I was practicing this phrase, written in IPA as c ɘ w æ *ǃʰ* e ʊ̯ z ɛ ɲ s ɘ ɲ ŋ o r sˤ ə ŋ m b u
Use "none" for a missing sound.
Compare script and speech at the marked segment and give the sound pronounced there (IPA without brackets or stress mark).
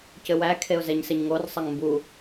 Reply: kʰ